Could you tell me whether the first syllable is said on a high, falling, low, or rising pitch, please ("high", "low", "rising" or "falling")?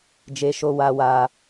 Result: high